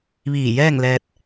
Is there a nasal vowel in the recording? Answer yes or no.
no